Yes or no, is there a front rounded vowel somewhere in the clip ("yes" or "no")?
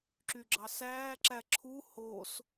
yes